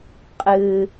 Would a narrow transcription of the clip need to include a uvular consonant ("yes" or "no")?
yes